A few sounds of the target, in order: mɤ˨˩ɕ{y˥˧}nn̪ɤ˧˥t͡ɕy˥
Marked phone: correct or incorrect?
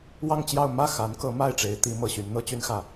incorrect